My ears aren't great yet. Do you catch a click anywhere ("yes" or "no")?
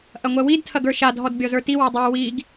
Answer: no